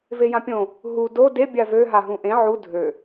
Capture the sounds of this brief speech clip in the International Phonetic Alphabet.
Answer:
v e j ã pʲ õ | ɦ u d o d e bʲ a v ø ɦ a ɦ ũ ʔ ẽ ʕ u dʱ ø

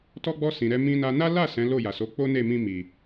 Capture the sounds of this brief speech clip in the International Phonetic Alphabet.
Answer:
t ɔ˧ ɡ͡b ɔ˧ s ĩ˨ ɾ ɛ˧ m ĩ˧ n a˧ n a˦ l a˦˨ s ɛ̃˨˦ l o˦˨ j a˨ s o˨˦ k͡p o˦ n e˦˨ m ĩ˧ m i˨

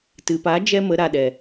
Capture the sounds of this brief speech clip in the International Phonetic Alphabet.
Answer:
t ɨ˨ p a˨˦ d͡ʒ ɛ˦ m ə˨˦ ɾ a˨ ɗ ɛ˨

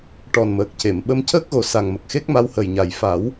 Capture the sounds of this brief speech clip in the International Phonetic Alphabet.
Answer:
ʈ ɔ˨˩ n m əː˨˩ k̚ c e˨˩˨ m ɓ ə˧ m c əː˦˥ k̚ ɣ o˨˩ s a˨˩ ŋ m ə˨˩ k̚ x e˦˥ k̚ m a˧˥ w h ə˨˩ j ɲ a˨˩ j f a˨˩˦ w

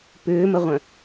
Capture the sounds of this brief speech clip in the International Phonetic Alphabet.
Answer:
p ʏː m ə ʁʷ œ̃

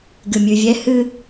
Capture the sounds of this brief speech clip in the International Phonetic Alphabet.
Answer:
ɡ ɨ mʲ ʉ vʲ ɛ h ɨ

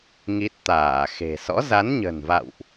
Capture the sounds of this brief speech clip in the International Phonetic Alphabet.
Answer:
ŋ i˦˥ t̚ t̪ aː˧˩ x e̤˨˩ s ɔ̰˧˥ z a˨˦ n ɲ ə̤˨˩ n v a̰˧˨ w ʔ

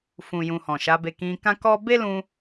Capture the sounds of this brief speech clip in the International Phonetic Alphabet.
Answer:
f ũ˨ j ũ˨ h ɔ̃˨ ʃ a˨˦ b e˧ k ĩ˧ k ã˦ k ɔ˦ b e˦ l ũ˧

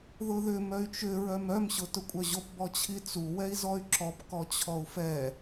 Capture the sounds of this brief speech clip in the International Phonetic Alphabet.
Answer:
ð ʊ ð ʏ m œ y̯ t͡ʃ ʏ ɹ œ m œ m ɕ ʊ t ʊ kʷʼ œ ʑ o p b ɔ t͡ɕʰ i t͡s u w ɛ i̯ z ɔ y̯ ǁ ɔ p k ɔ t͡ɕʰ ɔ u̯ f ɛ

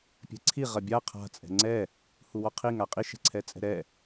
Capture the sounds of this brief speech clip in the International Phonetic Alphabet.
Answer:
pʲ ɛ̤ ǀʰ i ʁ ɐ bʲ a qʰ a̤ t͡sʼ ɛ̤ ŋ͡ǀ ɛ | h u w ɔ qʰ i ŋ a qʼ i ʃ ɛ̤ ǀʰ ɛ t͡sʼ ɛ̤ ɾ ɛ

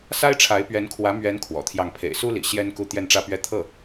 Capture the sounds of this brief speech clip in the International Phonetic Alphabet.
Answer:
s a˥ ɪ̯ ʈ͡ʂʰ a˧˥ ɪ̯ p ɥ ɛ˧˥ n kʰ w ä˧˥ m ɥ ɛ˧˥ n kʰ w ɔ̰˨˩ t̪ʰ j ɑ˥˩ ŋ pʰ ḛ˨˩ ɪ̯ s u˥ l ḭ˨˩ ɕ j ɛ˥ n k u˥˧ t̪ j ɛ˥˧ n ʈ͡ʂ ä˥˧ p ɥ ɛ˥˧ t̪ʰ ɤ˥˩

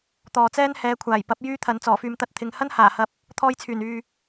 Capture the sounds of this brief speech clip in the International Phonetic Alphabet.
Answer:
t̪ ɔː˨ t͡s ɛː˥ n h ɛː˨˧ kʷʰ aː˨˩ j p ɐ˨˥ p̚ j yː˥ t̪ʰ ɐ˨ n t͡s ɔː˨˩ f yː˨ m t̪ ɐ˧ t̚ t̪ʰ ɪ˨ ŋ h ɐ˥ n h aː˨˩ h ɐ˨ p̚ | t̪ʰ ɔː˧ j t͡sʰ yː˨˩ n yː˨

